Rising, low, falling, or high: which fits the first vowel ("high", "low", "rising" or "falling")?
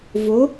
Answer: rising